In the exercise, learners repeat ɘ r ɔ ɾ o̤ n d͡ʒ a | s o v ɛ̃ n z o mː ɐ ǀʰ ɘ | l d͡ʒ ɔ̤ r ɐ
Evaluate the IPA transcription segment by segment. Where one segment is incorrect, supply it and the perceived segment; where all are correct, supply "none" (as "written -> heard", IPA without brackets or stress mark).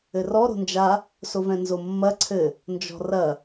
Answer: l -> n